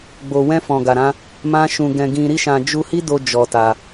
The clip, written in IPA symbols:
ɡ͡b o˧ w ɛ̃˦ f ɔ̃˧ ɡ a˧ ɾ ã˦ | m ã˦ ʃ ũ˧ ɡ ɛ̃˧ ɡ ĩ˧ ɾ i˦ ʃ ã˧ d͡ʒ u˧ h i˦ d o˧ d͡ʒ ɔ˧ t a˧

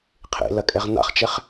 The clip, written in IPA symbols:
qʰ ḛ l ɐ kʼ ɛ ʁ n a̰ χ t͡ʃ ɛ χ

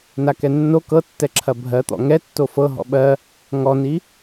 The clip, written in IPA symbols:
n a k ɛ nː o k ɤ tː ɛ ǁʰ ɐ bʱ ɜ t̪ ɔ̰ ŋ ɛ tː o f ɤ ɦ ɔ̰ ɓ ɜ | ŋ ɔ n i

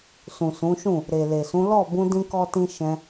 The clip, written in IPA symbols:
s ũ˨ s ũ˨˦ ʃ ũ˦˨ | ɾ e˨ l e˨ s ũ˨˦ l ɔ˦˨ b ũ˧ d ĩ˦ k ɔ˦ t ĩ˦ ʃ ɛ̃˧

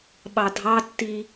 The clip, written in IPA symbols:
ɓ ɑ dʱ ɑ tː i

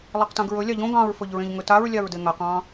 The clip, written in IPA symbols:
lˠ e q t ã ɡ ɹ ɵ lʲ ɑ ʎ õ ɡ ɑ̃ ɹ f ɵ ʎ ɹ ẽ ʎ ŋ ɵ t a ɹ lʲ ɑ ɹ d e ŋ a q ɑ̃

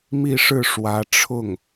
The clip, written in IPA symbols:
m i˥˧ ʂ ɻ̩˥˩ ʂ w ä˧˥ ʈ͡ʂʰ ʊ˥˩ ŋ

